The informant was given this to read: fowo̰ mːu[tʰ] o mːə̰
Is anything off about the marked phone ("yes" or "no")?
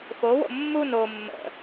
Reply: yes